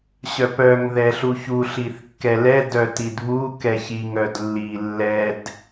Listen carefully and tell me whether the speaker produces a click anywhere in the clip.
no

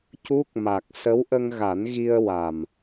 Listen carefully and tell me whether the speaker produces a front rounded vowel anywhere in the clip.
no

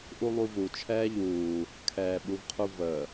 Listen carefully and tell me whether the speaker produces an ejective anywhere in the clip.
no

